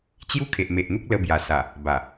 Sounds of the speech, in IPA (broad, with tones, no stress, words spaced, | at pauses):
t͡ɕju˦kʰe˨ʔ me˨ʔn̪u˦k̚ lə˧bja˨˩sa˨˩ | ba˨˩